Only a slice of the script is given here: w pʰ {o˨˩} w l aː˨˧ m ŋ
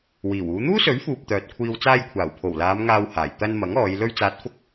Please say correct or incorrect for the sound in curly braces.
correct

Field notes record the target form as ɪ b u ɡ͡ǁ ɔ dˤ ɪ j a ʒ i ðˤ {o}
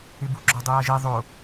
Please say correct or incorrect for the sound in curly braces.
correct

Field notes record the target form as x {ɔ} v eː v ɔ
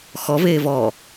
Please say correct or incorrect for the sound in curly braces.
correct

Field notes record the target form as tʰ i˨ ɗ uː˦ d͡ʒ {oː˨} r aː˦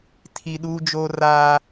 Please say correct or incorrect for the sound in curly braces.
incorrect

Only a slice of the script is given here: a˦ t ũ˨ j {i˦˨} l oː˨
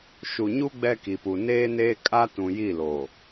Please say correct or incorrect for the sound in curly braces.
correct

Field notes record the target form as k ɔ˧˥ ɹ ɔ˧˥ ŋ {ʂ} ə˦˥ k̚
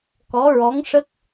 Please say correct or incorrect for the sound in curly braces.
correct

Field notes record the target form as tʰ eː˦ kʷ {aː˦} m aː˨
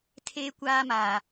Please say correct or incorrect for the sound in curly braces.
correct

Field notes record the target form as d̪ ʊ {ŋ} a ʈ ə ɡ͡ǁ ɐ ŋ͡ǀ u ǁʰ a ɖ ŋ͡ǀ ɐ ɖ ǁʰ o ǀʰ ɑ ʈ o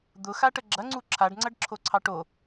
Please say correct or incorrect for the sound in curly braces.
incorrect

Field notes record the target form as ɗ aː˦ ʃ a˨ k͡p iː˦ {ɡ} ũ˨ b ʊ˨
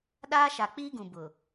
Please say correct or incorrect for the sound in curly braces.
correct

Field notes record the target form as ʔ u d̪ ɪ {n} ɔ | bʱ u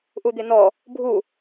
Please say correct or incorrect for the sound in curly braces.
correct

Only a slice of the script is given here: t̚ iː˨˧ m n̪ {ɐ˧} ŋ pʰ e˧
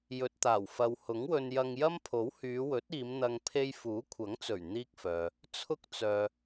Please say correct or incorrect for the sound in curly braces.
correct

